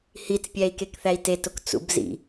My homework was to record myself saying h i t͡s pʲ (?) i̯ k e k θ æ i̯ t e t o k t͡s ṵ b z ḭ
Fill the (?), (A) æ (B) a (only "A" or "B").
A